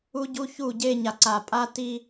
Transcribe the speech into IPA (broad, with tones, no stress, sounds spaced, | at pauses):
u˦ ɟ u˦ ç u˦˨ ɟ e˦ ɲ a˨ ǀ a˨ pʼ a˦ t i˦